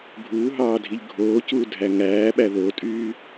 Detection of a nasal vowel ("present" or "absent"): absent